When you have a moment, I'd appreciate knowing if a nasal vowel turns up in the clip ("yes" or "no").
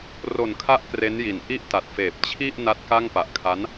no